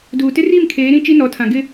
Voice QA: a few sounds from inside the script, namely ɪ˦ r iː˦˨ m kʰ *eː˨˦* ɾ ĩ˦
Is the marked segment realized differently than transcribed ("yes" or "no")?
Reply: no